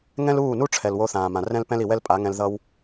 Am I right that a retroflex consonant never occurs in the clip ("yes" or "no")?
no